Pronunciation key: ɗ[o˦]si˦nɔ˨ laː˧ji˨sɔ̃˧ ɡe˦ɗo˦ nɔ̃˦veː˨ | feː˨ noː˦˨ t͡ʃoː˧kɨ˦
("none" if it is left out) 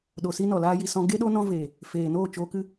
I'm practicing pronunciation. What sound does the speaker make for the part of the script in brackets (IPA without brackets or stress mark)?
o˨